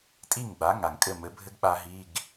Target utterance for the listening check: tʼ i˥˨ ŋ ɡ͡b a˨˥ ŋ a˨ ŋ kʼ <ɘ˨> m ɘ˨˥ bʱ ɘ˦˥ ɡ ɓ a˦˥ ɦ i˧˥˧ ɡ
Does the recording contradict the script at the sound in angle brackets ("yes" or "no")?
yes